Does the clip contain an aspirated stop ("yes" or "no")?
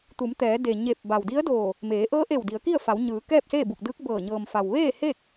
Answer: no